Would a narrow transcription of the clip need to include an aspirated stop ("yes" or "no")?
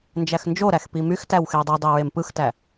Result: no